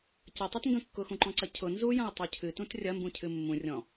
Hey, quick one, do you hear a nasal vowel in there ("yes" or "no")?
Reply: yes